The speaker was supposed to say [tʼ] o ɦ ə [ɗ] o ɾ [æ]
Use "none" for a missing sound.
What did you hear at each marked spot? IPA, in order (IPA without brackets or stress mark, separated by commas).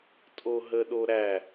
tʼ, ɗ, æ